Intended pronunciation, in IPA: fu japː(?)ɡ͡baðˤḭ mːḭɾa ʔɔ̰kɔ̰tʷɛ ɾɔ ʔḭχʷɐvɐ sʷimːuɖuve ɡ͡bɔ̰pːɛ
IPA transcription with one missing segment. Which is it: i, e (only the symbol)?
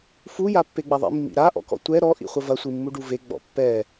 e